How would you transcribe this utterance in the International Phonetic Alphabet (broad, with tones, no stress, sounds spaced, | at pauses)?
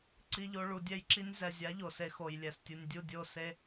ǀ i˦ ʎ o˦ ɭ u˧ dʲ ɛ˦ j ǁ i˦ nʲ z ɛ˨ zʲ a˨˦ ʎ o˨ s e˧ x o˨ j lʲ ɛ˨ s tʲ ɯ˨ nʲ dʲ u˦˨ dʲ o˦˨ s e˦